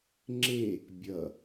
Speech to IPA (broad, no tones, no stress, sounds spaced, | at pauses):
ŋ͡ǁ e | bʲ ʌ